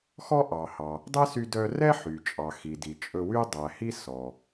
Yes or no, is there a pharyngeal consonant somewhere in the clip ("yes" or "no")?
yes